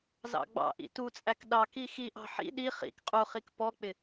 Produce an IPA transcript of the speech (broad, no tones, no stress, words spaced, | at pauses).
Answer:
zɑ̰ɡ͡bɑ̰ʔḭ tut͡sʼæk ɗɑk ixiʔɑ̤ ħḭ ɗi χḭk qʼuχik pɔk͡pɪ